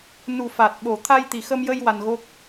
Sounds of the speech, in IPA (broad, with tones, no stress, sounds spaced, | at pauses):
n u˨˩ f a˨˩ t̚ ɓ o˨˩ t̪ʰ a˧ j t̪ i˨˩ x ə˧ m j ə˧ j w a˧ n ɣ o˦˥ k̚